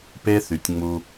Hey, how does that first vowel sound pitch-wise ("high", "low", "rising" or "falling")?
high